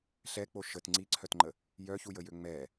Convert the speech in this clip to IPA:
ɬɛk͡po ʃət ŋ͡ǀiǀʰœtŋ͡ǃə | jœçujəjø ŋ͡mɛ

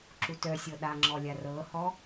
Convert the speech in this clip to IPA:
ǁutœsʲɤ ɗaŋ͡ǁɔ lʲarɤhɔ

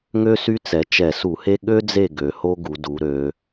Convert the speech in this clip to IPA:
ŋø˥sy˥t͡sɛ˩˧ t͡ʃɛ˧˩˧su˧˩˧he˥ ɠø˥d͡ze˦˨ ɡø˩˧ho˥ɡu˩˧du˩˧ ɾø˩˧

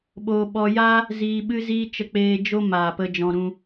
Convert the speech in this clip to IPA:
ɓo˧ ɓɔ˧ja˦ | ziː˧ɓɨ˦ziː˦ t͡ʃə˧k͡peː˧ d͡ʒo˦maː˨pə˧ d͡ʒɔ̃˧ɾũ˧

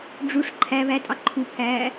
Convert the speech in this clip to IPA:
ɖ͡ʐuʂ ǃʰæ βætʼɑ ǃʰupʰæː

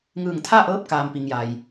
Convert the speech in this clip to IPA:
ŋɯː˧˩ŋt̪ʰa˥˨ʔɤː˧˥p̚ kaː˩m pi˩ŋja˩j

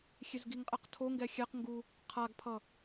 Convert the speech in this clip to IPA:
xʲezɡiŋqʼɛq tʰo ŋɡɛxʲɛqŋɡu | qʰaɡpʰʌ

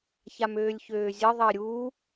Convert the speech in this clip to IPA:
çamøːlʲçøːzʲə ðˤəːɾʲuː

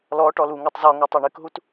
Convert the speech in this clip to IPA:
lɔ ʈɔluŋutˤ zɔŋo tˤoɳɨkɦut

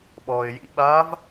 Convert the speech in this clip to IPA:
ɓɔːɪ̯jḭɓaːv

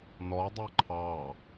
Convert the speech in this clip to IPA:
nɔdˤɛ ǃʰɑ

